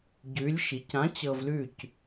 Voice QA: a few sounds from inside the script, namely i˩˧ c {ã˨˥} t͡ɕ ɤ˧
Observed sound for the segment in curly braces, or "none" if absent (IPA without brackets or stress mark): ã˨˥